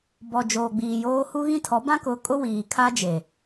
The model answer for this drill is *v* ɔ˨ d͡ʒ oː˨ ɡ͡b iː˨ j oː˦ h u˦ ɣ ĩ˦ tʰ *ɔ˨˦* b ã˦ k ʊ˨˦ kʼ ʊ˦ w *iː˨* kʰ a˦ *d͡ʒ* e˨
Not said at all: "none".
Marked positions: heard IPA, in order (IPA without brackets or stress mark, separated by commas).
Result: b, ɔ˨˦, iː˨, d͡ʒ